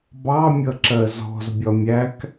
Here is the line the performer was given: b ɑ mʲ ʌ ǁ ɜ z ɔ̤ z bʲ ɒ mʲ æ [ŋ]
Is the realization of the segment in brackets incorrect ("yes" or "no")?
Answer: yes